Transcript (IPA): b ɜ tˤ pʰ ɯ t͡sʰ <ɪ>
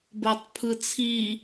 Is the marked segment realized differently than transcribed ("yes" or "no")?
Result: yes